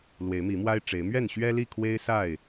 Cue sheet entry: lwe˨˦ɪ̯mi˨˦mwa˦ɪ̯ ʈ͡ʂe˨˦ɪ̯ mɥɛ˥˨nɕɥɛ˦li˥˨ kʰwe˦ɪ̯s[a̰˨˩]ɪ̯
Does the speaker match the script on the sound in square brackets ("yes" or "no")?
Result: no